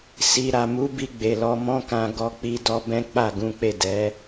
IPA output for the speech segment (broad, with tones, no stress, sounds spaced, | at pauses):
s i˨ ɾ a˨ m u˨˦ b i˧ ɡ͡b e˨ l ɔ˧ m ɔ̃˦ k ã˧ ɡ ɔ˦ k͡p i˦ d ɔ˦ b ɛ̃˦ k͡p a˦˨ ɡ ũ˨˦ k͡p e˦˨ d ɛ˨˦